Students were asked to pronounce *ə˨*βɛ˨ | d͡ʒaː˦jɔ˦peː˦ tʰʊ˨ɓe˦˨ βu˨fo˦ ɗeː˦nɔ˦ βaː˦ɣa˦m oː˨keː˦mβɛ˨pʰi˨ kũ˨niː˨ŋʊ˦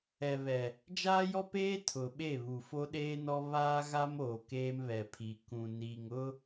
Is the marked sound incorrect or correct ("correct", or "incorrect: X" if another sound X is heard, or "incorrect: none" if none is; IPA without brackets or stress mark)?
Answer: incorrect: ɛ˨